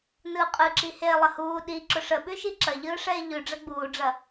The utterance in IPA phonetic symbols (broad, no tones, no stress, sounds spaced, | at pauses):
n ɯː qʼ ɯ ǁ i h eː lˠ ə h uː ɗ i ǁ ʊ ʂ ə ɓ ʉ ʃ i ǁ ɐ ʎ ɯː ʂ ɛː ʎ ʉ ɖ͡ʐ ɐ ɡ͡b uː ɖ͡ʐ ɐ